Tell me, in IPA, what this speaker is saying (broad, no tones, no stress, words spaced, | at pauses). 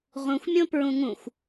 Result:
ʁũxʷmʲõ pɹũŋũxʷ